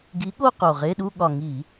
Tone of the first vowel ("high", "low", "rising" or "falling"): rising